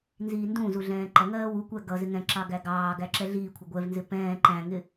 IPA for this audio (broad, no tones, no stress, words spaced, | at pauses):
nziːndũzu ɮɛ̃ːǃʌŋɜː wukʷæ ɡʌ zɪŋɛ̃ǁɑ ɡæɡɑːɡæ ǁɛɮiːkʷʰʌ ɡʷɛvnzɪ pɛ̃ː ǃæ̃ŋɪ